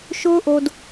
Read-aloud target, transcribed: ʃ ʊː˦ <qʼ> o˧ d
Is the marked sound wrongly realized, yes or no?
yes